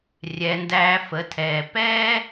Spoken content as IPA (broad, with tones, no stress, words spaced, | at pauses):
rʲɛ˩˧ndæː˧fə˩˧tʰɛː˩ pɛː˥